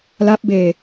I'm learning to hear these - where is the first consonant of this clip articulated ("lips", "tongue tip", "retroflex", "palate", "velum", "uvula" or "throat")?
tongue tip